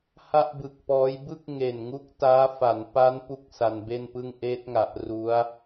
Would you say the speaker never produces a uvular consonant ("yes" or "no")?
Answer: yes